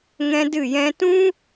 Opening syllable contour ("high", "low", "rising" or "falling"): high